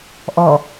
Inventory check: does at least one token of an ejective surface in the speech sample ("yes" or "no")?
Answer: no